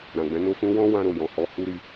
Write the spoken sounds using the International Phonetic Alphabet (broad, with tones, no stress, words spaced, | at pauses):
ɾã˨ɡ͡bɛ̃˨˦no˦fũ˦ wɔ̃˦ wã˦ɾo˦˨jɔ̃˨hɔ˧ hu˦ɾi˧